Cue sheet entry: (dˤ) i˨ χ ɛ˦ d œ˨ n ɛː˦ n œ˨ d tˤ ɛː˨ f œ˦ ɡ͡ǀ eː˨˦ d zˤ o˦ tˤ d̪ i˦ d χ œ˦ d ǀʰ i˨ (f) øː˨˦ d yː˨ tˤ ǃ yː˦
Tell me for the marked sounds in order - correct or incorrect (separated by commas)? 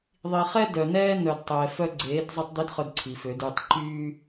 incorrect, correct